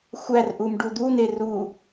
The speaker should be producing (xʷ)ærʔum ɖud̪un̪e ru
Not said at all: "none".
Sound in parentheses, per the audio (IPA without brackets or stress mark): xʷ